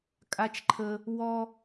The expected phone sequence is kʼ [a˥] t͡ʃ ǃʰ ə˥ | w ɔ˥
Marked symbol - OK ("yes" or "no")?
yes